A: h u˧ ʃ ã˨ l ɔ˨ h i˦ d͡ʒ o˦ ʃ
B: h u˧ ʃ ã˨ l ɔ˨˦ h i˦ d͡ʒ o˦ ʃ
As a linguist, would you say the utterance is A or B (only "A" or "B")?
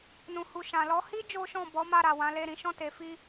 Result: B